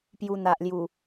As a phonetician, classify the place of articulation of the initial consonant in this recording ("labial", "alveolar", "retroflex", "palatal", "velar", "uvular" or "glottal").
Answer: labial